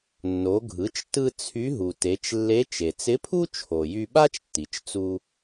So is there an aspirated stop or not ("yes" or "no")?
yes